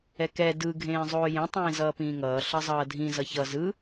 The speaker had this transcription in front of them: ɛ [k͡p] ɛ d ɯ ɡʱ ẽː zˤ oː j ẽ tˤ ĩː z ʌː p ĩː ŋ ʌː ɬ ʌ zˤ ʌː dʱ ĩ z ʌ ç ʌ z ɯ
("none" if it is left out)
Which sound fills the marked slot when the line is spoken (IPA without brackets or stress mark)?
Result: k